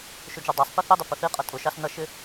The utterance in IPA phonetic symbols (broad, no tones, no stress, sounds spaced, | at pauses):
ʃ ʊ d͡ʒ ə˞ dˤ æ sˤ p i θ i dˤ ɪ p ə θ i qʼ ʌ tʼ ʊ ʃ ɑ s n ʌ ʃ ɪ